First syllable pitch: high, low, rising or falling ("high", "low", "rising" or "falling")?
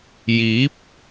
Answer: rising